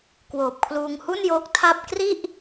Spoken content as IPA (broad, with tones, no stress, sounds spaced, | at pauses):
k w oː˨˩ p̚ kʰ l uː˧ ŋ h u˥˩ n j oː˦˥ k̚ tʰ a˥˩ p̚ k r i˥˩ ʔ